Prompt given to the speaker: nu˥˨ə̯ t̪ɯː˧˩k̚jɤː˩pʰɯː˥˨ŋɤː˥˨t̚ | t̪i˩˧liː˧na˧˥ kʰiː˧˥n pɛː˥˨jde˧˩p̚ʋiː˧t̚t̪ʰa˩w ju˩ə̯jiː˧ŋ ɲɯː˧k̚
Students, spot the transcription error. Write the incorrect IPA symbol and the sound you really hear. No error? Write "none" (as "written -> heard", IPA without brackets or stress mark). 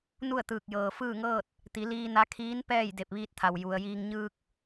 pʰ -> f